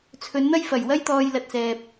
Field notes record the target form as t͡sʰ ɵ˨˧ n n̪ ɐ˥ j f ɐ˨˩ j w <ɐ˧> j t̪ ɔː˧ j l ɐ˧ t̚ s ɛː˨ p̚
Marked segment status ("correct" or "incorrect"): incorrect